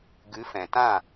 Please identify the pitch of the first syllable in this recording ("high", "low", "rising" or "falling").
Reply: rising